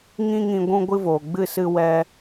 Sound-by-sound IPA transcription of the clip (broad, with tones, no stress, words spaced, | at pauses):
ŋĩ˦ŋĩ˧ ɡʷũ˦ɡʷɨ˦voː˨ ɡ͡bɨ˦˨sɨ˧ wɛ˧